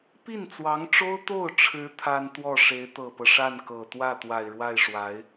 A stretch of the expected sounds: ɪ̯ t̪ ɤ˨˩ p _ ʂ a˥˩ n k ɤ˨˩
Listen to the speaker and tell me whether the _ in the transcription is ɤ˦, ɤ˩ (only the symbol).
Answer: ɤ˦